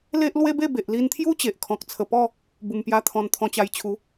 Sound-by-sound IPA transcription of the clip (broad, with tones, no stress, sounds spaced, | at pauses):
l e˦ ʔ l w e˦ b e˥˧ b e˨ ʔ l i˧ n t̪ʰ j u˦ t͡ɕ e˨ ʔ kʰ ɔ̃˨ k̚ t͡sʰ ə˨˩ p ɔ˥˧ | b u˨˩ m p j a˧ t̪ʰ ɔ̃˧ n t̪ʰ ɔ̃˧ t͡ɕ a˧ j t͡ɕʰ u˨˦